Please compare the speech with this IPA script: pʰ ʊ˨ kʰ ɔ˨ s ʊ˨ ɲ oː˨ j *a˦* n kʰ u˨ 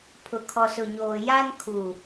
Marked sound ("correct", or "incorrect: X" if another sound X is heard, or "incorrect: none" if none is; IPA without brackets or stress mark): correct